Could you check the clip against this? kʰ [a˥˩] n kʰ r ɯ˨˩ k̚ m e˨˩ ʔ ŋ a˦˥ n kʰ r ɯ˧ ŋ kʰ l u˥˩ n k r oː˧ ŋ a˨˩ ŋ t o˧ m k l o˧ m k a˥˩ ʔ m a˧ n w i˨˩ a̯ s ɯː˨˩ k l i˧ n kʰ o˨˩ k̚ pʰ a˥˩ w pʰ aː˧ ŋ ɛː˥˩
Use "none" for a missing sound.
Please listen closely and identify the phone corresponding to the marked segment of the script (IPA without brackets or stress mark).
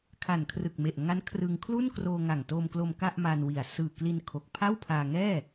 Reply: a˨˩